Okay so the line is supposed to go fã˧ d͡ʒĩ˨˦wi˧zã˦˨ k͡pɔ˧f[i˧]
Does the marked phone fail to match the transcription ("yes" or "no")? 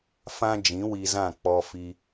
no